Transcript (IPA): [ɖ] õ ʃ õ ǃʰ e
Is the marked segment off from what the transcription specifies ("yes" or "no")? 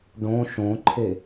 no